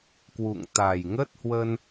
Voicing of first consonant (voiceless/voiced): voiceless